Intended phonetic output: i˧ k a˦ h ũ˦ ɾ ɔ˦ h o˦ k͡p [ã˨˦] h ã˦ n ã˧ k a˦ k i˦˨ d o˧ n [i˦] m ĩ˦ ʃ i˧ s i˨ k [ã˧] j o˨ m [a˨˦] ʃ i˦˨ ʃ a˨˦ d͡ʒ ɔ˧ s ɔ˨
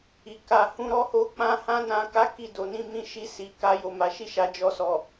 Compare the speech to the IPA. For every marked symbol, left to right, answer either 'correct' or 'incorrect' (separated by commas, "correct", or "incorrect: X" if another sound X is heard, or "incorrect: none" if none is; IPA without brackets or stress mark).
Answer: incorrect: ã˦, incorrect: ĩ˦, incorrect: a˧, correct